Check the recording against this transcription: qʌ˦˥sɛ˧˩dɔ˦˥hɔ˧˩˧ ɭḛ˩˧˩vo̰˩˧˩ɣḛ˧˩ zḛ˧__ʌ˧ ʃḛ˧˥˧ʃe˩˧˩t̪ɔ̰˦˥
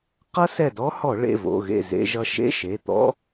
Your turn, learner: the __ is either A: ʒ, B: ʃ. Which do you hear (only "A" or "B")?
A